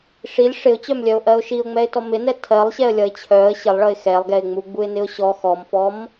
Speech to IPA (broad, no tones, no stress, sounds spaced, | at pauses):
ʂ i lʲ ʂ ɪ ʊ̯ t͡ɕ œ m lʲ œ ʊ̯ ʔ ɜ ʊ̯ ʃ i ʊ̯ ŋ͡m ɛ ɪ̯ t ɔ m ɪ n ɛ tʰ ɜ lˠ ɕ ɛ ə̯ lʲ ʌ ɪ̯ t͡ɕʰ œ ə̯ ɕ ɪ lˠ ɭ ʌ ɪ̯ x ɛ lˠ ɡ ɛ ɪ̯ ŋ͡m u ɡ͡b u ɪ̯ n ɪ ʊ̯ ɕ ɔ x ɔ m f ɔ m